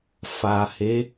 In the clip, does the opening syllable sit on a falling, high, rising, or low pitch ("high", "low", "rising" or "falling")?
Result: low